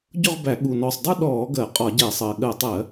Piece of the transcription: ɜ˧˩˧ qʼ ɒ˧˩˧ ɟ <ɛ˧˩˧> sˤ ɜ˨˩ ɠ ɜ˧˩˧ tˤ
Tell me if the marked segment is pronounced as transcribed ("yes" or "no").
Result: yes